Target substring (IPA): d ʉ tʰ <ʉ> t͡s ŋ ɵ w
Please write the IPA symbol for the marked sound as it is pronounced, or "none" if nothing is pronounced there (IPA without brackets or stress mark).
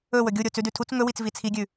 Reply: u